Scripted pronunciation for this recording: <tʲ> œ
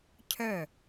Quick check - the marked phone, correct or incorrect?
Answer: incorrect: cʰ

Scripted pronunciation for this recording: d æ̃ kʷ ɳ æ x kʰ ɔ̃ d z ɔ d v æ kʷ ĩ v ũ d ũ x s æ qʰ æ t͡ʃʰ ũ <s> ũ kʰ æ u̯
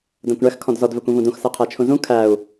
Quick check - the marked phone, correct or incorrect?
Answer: incorrect: z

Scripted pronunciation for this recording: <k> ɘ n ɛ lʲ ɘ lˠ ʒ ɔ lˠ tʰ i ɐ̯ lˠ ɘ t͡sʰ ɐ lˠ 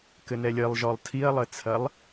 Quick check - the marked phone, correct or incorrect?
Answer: correct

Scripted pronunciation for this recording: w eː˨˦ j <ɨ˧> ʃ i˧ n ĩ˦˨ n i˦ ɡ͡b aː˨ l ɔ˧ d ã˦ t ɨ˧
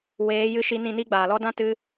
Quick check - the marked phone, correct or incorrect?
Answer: correct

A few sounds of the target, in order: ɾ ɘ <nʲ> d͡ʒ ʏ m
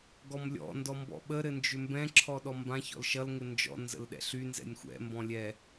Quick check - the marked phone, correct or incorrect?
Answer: incorrect: n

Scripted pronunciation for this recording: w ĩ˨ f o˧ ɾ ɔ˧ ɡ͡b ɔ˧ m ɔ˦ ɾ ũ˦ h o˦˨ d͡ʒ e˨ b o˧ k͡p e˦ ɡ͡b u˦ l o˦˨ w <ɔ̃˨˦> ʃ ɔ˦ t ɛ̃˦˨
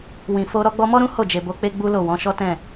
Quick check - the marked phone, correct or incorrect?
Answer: correct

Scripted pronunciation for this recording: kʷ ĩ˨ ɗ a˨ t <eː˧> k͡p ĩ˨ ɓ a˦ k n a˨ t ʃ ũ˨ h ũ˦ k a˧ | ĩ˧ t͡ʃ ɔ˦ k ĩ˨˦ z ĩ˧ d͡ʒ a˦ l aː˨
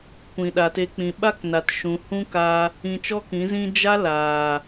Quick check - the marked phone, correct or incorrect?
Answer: incorrect: e˧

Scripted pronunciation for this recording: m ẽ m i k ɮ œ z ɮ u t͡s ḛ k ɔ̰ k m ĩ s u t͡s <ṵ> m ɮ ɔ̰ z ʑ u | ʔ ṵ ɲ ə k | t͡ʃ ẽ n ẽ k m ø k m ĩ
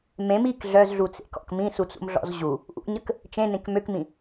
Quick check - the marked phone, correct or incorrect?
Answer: correct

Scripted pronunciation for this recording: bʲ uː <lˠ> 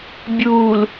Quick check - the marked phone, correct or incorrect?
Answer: incorrect: l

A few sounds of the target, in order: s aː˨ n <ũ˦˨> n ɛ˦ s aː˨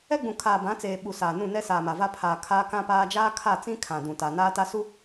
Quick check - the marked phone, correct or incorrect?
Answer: correct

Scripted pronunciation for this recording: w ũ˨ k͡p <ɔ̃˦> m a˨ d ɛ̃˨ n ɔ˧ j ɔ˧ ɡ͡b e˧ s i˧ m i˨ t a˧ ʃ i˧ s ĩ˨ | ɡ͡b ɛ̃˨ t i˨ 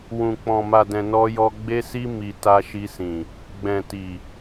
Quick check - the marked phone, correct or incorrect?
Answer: incorrect: ɔ̃˨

